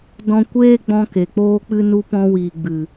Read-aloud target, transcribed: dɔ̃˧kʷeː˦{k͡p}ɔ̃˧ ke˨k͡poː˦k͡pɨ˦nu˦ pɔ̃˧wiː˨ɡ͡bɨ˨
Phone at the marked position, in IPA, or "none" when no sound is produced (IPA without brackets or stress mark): ɡ͡b